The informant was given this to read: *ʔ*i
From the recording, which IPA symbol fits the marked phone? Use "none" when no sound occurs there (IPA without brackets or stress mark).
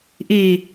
ʔ